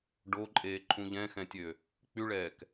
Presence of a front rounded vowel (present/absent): present